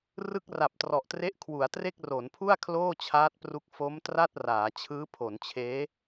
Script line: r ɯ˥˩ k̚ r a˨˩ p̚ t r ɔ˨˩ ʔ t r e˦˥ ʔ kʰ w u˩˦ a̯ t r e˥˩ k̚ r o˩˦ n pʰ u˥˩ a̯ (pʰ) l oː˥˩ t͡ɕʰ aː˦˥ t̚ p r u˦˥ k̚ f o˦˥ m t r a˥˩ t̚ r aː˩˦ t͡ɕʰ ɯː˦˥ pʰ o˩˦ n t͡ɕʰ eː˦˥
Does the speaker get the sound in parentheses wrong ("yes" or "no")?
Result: yes